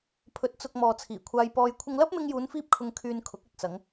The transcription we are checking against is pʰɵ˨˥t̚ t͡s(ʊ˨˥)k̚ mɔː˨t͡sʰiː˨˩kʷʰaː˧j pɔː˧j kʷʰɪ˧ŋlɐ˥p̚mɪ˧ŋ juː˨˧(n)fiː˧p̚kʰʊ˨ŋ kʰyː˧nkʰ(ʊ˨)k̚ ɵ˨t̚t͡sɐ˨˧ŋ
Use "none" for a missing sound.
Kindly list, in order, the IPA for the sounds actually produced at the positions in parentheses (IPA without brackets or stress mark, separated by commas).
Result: ʊ˨, n, ʊ˨˥